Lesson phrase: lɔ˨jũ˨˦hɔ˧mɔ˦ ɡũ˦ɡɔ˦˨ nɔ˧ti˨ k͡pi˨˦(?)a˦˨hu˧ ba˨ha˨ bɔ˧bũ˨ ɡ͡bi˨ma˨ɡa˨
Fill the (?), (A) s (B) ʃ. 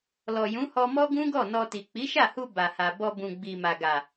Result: B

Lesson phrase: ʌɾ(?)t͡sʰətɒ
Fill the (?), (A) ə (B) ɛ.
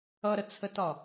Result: A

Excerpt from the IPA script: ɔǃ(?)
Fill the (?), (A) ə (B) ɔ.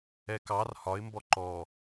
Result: B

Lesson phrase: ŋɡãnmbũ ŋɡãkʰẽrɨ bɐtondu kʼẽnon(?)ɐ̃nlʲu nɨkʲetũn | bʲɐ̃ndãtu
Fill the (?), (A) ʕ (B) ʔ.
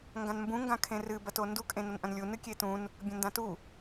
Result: B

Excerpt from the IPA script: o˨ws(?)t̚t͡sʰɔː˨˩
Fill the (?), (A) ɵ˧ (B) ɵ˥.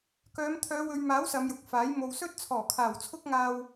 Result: B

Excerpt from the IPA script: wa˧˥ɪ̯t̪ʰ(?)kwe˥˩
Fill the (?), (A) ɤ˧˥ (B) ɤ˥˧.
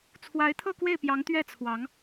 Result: B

